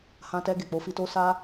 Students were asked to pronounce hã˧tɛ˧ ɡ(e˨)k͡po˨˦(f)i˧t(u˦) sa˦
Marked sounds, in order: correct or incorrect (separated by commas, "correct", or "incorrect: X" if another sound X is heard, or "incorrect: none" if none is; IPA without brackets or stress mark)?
correct, correct, incorrect: o˦